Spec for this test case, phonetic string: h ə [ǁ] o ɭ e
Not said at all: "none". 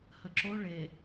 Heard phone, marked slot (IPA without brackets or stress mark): ǁ